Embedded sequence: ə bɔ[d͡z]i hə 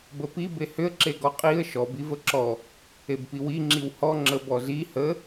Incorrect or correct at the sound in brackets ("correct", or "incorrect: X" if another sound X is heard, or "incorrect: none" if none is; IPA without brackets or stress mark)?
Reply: incorrect: z